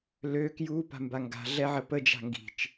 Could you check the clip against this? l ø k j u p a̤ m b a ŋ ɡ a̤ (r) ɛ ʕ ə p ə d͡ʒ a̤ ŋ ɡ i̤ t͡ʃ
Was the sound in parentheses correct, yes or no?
no